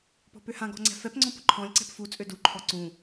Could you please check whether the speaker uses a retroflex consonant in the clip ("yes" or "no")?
no